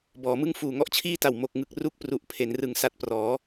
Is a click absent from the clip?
yes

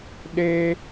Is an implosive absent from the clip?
no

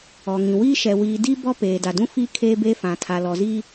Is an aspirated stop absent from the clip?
no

